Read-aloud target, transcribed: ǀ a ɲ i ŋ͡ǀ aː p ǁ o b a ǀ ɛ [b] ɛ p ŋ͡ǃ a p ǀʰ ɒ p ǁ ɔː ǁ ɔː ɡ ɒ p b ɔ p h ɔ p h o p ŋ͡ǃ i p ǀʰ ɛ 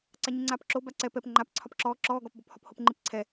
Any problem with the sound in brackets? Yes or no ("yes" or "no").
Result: yes